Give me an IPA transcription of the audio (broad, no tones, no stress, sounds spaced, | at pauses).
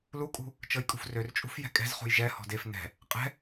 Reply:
l u kʼ ṳ | t͡ʃ ɤ j kʼ ṳ f r ø r t͡ʃʼ ṳ f j ɛ̤ kʼ ɛ̤ z χ ṳ j ʒ ɛ h ɔ̤ d e f n ɛ̤ | qʼ ɛ̤